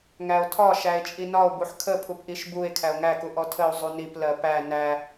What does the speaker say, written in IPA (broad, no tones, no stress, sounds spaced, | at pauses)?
ŋ æ o̯ tʰ ɒ ʃ æ e̯ t͡ʃʼ i n ɒ o̯ b u ħ kʰ ə pʰ u p ʔ i ʃ b u e̯ kʰ æ o̯ ŋ æ k u ʔ ɔ tʰ ə o̯ zˤ u n i p l ɜ p æ n æ